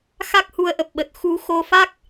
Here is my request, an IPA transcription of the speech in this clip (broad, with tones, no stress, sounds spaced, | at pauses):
x a˦˥ k̚ h u˨˦ ə̯ ʔ ə˨˩ p̚ ɓ ə˨˩ t̚ x u˨˦ x o˧ f a˦˥ k̚